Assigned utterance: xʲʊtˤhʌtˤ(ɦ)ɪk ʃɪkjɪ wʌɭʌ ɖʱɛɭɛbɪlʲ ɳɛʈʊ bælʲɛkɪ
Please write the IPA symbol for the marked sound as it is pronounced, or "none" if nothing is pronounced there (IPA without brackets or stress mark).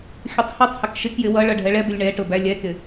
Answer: h